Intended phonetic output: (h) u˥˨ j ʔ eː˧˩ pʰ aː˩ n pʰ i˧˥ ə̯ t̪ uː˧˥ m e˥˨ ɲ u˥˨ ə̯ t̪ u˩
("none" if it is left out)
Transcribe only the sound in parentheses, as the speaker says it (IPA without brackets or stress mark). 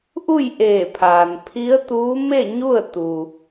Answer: ʔ